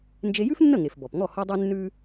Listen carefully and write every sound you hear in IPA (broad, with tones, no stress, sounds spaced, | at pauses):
n d͡ʒ e˧ j ʉ˥ f nː ə˥˩ ŋ e˩ f b ɔ˩ p ŋ ɔ˥˩ h ɔ˥ dˤ ʉ˥ nː ʉ˥